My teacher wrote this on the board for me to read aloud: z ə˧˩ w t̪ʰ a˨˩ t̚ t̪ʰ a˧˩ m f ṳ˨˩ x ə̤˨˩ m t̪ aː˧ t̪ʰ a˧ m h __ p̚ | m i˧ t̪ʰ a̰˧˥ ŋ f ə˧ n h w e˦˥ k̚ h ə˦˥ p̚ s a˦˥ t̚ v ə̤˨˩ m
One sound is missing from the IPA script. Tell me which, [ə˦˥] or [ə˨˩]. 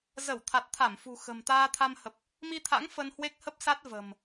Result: ə˨˩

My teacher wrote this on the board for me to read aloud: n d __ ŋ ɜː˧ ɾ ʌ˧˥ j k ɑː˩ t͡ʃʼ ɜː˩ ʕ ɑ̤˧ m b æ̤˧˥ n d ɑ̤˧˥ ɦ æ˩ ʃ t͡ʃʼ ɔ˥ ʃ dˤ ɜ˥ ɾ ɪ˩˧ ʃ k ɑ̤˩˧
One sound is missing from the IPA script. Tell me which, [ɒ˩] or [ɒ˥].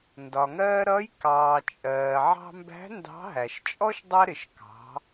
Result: ɒ˩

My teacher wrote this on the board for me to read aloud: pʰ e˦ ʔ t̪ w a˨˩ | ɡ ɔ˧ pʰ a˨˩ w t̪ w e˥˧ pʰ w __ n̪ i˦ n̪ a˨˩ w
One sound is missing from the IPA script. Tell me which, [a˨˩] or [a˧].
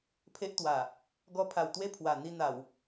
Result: a˨˩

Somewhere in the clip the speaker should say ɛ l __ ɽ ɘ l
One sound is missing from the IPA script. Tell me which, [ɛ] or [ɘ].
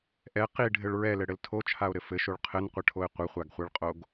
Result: ɘ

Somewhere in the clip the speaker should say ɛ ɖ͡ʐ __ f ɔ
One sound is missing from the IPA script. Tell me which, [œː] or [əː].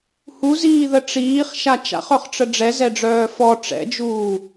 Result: œː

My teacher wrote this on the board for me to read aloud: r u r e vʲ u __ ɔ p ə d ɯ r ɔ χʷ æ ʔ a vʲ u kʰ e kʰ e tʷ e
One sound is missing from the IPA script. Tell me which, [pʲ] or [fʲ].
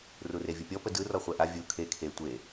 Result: pʲ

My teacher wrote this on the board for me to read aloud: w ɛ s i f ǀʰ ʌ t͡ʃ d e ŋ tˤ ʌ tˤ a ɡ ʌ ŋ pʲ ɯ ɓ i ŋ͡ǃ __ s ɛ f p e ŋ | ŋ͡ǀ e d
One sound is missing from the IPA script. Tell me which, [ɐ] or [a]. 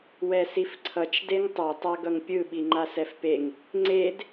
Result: a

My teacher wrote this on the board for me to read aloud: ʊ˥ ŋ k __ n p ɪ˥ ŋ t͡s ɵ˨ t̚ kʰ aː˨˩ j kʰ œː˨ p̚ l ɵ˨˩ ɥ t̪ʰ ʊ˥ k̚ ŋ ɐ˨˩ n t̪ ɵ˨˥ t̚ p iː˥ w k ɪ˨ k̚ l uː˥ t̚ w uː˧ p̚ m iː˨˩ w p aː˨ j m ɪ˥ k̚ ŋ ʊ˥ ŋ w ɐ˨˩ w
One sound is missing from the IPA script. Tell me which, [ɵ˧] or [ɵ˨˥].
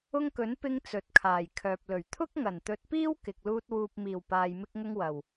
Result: ɵ˨˥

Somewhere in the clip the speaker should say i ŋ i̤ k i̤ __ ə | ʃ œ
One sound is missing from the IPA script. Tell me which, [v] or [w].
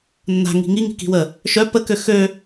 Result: w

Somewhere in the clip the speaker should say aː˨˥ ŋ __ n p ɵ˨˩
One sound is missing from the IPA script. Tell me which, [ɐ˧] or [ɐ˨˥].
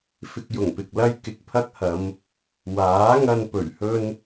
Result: ɐ˧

